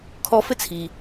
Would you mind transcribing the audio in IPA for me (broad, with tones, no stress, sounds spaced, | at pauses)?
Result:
kʰ ɔ˧ f ɘ˥ t͡sʰ i˩